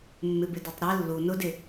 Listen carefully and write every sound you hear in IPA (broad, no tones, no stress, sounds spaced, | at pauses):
mː ɪ b ɪ d e tˤ ɾ e lː u n ʊ d ɪ